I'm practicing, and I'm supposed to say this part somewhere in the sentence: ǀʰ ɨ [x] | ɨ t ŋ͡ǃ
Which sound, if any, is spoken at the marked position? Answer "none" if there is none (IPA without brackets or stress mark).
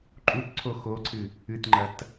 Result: none